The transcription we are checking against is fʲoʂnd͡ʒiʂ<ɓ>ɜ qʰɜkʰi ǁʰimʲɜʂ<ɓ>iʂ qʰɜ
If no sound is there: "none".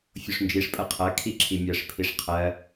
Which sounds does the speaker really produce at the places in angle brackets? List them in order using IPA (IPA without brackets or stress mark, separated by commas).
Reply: pʼ, pʰ